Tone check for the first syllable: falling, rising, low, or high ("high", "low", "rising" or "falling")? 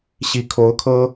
rising